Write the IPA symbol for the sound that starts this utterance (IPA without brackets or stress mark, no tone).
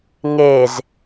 ŋ